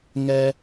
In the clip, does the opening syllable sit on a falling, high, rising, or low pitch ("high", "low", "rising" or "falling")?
low